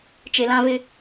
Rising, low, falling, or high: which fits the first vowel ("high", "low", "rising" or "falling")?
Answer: low